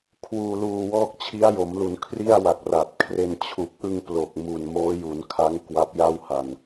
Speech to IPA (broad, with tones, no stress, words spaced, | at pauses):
kʰwuː˧luː˧wɔː˥˩k̚ t͡ɕʰi˦˥a̯jo˩˦mlu˩˦n kʰri˥˩a̯wa˨˩k̚ ra˨˩t̚ kʰre˧n t͡ɕʰu˨˩k̚ʔɯ˧ŋ plo˨˩k̚mu˨˩n moː˦˥ju˩˦nkʰa˦˥ŋ kwa˦˥p̚ja˥˩wha˨˩n